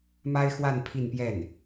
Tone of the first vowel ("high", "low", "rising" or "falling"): high